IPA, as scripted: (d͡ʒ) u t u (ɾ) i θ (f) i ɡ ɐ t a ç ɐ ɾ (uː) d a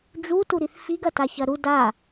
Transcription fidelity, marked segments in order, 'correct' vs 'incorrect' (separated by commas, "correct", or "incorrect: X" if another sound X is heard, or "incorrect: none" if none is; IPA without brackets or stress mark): correct, correct, correct, incorrect: u